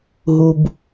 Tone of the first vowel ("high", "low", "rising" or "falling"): low